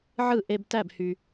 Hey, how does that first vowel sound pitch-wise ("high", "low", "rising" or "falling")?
falling